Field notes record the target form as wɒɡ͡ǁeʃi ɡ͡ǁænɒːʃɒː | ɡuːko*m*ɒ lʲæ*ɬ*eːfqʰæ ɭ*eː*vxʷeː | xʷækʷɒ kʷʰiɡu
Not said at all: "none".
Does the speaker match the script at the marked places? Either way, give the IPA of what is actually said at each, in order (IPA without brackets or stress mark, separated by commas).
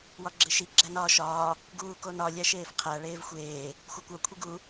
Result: n, ʃ, eː